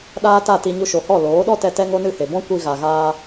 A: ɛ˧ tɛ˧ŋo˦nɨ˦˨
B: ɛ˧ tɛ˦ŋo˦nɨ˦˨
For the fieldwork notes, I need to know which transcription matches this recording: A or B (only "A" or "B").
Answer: B